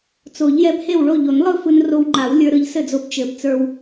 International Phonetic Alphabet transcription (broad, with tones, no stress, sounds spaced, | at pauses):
t͡s o˨˩˦ ʎ j ɛ˧ b h e˥˩ w ɭ o˥˩ ʎ o˨˩˦ n lˠ ɯ˥˩ f ɯ˧ n r o˧ w ŋ͡ǃ a˨˩˦ w lʲ ə˞˧ ɾ ɯ˧ ʎ s ɘ˥˩ d͡z o˧ b t͡ʃ ɘ˨˩˦ b t͡s ə˞˧ w